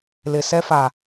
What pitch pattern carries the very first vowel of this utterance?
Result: low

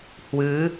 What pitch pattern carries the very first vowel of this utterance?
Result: rising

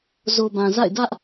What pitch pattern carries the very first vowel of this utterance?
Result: low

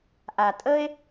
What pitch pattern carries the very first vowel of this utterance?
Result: low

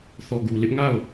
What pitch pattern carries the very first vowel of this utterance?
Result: low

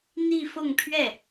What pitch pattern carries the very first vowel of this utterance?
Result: falling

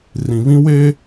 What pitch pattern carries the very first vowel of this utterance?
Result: low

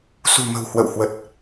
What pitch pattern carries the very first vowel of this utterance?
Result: low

